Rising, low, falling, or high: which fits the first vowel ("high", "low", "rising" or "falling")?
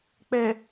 low